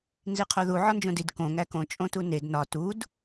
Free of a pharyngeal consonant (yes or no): no